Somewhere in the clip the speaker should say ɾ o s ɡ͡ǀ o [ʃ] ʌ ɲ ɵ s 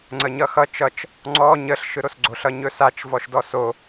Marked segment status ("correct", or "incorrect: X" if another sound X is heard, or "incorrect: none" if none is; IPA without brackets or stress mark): incorrect: ɬ